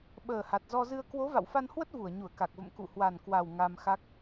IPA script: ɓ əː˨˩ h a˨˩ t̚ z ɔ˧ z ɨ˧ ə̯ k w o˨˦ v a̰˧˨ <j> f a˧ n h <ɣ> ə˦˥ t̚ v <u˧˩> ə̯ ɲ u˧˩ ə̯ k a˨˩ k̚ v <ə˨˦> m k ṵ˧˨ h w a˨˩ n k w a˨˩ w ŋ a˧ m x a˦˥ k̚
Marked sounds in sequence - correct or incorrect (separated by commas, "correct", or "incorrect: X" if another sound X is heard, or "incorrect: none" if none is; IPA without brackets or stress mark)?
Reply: incorrect: w, incorrect: w, correct, incorrect: ə̰˧˨